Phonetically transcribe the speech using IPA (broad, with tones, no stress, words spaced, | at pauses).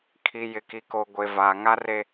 kʰi˨jɪ˨ki˨ko˨ ɡʷe˨vaː˨ŋa˦ re˦